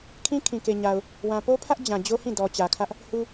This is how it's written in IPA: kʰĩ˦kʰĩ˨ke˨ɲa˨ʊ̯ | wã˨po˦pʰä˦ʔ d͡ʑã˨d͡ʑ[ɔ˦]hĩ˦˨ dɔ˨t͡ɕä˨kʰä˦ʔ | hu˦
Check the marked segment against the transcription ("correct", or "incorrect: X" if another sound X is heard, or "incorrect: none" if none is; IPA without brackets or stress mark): incorrect: o˦